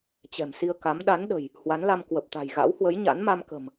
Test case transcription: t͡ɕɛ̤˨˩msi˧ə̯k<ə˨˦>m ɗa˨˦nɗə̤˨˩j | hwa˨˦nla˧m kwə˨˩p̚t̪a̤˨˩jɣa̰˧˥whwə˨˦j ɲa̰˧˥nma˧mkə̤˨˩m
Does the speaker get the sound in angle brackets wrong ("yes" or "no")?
yes